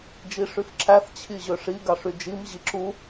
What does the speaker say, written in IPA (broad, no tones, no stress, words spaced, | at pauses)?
d͡ʒiʂyfǁæθ t͡ɕʰiʑøʂi ɡɑʂyd͡ʒim ʑiǁu